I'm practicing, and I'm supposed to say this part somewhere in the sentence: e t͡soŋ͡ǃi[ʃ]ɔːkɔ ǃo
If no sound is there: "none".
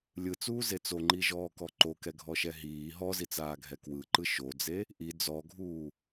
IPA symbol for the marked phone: ʒ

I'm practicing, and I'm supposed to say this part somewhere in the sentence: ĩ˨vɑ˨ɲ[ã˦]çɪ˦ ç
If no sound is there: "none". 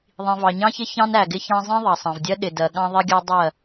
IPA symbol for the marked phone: ɑ̃˦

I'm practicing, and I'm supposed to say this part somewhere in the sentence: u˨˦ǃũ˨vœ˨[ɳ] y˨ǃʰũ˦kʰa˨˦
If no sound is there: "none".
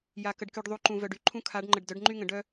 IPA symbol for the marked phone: ɖ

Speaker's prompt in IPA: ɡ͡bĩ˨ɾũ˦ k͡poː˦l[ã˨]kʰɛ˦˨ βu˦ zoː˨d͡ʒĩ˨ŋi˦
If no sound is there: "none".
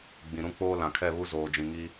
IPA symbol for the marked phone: ã˨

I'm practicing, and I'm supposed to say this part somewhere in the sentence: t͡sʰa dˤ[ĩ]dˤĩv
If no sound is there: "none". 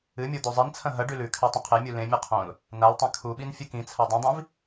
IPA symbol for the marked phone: ĩ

